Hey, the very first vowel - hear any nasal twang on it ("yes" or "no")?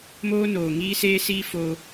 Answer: no